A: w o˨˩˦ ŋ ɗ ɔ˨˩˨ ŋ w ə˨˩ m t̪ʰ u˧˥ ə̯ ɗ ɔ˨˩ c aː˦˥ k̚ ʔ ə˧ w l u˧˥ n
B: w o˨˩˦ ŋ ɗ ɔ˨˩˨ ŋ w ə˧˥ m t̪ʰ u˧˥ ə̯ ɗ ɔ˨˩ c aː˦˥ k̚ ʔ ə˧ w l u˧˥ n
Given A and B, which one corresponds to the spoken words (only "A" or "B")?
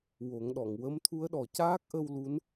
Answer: B